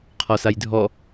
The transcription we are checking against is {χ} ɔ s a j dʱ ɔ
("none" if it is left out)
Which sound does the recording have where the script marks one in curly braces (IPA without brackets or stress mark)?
qʰ